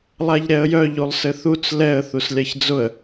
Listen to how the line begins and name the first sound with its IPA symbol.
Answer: lˠ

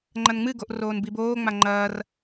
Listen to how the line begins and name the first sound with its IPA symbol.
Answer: ŋ͡ǃ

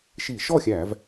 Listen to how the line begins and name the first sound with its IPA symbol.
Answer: ʃ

